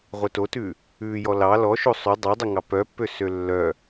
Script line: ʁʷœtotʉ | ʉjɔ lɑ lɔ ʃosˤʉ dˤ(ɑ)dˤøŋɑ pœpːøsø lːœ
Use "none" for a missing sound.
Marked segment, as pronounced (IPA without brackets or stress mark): ɑ